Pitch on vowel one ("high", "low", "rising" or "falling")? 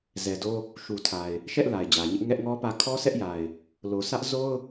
low